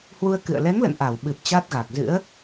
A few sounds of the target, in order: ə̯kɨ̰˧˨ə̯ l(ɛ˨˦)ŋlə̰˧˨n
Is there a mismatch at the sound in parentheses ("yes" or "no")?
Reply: no